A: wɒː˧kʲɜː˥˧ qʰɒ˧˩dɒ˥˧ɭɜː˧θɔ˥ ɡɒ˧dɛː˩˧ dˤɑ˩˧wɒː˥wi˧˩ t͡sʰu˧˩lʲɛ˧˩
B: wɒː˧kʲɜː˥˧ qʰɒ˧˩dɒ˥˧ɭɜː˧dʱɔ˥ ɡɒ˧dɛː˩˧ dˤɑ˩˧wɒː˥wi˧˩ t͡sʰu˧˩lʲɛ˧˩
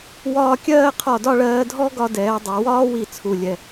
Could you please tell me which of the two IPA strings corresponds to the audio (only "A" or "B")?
B